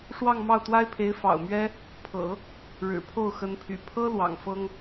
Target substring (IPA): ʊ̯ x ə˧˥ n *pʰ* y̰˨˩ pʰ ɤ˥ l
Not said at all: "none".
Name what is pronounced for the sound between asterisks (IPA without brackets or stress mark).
pʰ